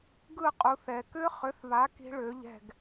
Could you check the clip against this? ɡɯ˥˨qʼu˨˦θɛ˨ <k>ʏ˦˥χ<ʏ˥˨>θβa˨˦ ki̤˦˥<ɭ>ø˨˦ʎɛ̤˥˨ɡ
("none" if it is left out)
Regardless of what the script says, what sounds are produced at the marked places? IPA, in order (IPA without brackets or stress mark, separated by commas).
k, ʏ˨˦, ɭ